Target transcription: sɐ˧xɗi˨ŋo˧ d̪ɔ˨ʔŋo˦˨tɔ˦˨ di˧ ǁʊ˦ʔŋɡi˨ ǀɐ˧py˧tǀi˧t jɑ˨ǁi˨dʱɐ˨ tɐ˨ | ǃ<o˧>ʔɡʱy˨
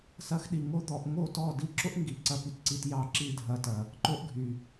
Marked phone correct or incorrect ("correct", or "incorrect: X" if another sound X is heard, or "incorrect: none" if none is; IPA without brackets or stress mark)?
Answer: correct